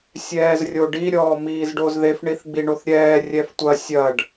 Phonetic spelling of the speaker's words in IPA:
sʲ ɛː z rʲ o ɖ i ɾʲ ɔː m iː z ɖ o z ð e f ɳ i θ ɡ͡b i ɳ o θ ɾʲ ɛː rʲ ɛ f tʷ ɐ sʲ ɐ ɖ

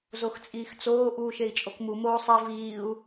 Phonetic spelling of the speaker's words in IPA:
z o x t͡sʼ iː x t͡s oː ʔ uː ʃ e i̯ t͡ʃʼ o k m u m oː sˤ e v iː u̯

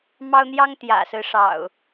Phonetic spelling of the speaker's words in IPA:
m ɑ˦ ʊ̯ n̪ j ɑ˦ ŋ t̪ j ä̰˨˩ s ɹ̩˦ ʂ ɑ̰˨˩ ʊ̯

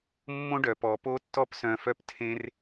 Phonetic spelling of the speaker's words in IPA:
mː õ˦ ɖ œ˨ p ɔ˨ p o˦ tː ɔ˦ p s œ̃˧ f œ˦ p tʰ ẽ˧ r

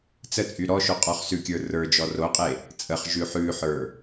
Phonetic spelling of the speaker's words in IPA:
t͡s ə t͡sʼ y ɾ ɔ ʃ o qʼ ɔ χ s ʉ kʲ ə˞ r ə˞ d͡ʒ ɔ r o qʼ e | t͡sʼ ə χ ʒ ʉ ħ ʉ ħ ə˞

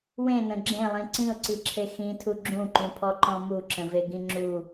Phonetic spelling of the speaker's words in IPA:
w ẽ n ə̃ ɡ͡ǁ ẽ lˠ ĩ ǀ ĩ ʊ̯ ǀ i ǁʰ e x ĩ tʰ u ɡ͡ǁ ũ ǃ ũ pʰ ɔ ǃ ɔ̃ m u ǁ ə̃ v e ɡ ĩ ŋ͡ǁ u

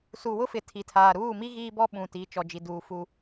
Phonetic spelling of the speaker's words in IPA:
s u˨ w ʊ˦ f ɪ˨ tʰ i˨ tʰ aː˨ ɾ uː˦˨ m i˦ ɣ iː˦ b ɔ˦ ɓ ũ˨ t i˨˦ t͡ʃ ɔ˨ d͡ʒ i˨ d uː˨ f u˦

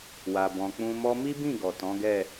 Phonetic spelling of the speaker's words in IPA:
w a˨ b ɔ̃˨ k͡p ũ˧ m ɔ˦ m i˦ b ĩ˦˨ ɡ ɔ˨ t ɔ̃˨˦ ɡ ɛ˦˨

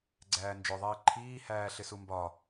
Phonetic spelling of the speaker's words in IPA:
ɡ͡ǀ æː n d͡ʒ ʊ ðˤ iː ǃʰ iː h æː ɬ ɪ s u m b ɒ

